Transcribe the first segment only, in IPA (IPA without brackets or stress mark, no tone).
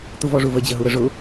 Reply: t̪